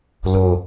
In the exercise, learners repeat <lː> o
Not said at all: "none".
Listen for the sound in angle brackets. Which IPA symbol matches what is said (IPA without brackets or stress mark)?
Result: l